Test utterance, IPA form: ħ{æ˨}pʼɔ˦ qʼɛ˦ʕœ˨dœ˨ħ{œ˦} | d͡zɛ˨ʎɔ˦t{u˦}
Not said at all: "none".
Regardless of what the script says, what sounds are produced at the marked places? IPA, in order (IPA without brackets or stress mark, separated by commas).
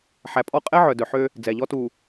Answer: æ˨, ø˦, u˨